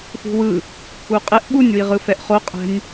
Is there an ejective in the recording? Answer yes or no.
yes